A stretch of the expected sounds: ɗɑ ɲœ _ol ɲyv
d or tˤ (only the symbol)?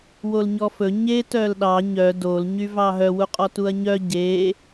d